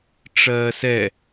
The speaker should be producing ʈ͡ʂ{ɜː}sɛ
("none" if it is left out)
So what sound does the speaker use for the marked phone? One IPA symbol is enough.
ɜː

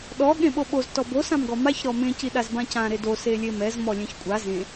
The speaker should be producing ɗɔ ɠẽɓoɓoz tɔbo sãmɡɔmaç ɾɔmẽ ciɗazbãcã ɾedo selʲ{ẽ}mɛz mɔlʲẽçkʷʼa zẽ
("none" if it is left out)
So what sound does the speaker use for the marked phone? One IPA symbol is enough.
e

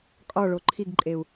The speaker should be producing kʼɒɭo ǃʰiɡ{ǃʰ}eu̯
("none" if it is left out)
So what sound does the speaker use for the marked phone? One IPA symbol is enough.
ǃʼ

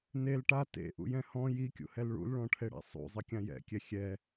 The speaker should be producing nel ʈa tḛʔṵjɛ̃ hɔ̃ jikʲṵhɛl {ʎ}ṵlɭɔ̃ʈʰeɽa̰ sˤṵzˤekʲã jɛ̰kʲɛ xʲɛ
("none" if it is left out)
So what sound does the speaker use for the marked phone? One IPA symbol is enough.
ɭ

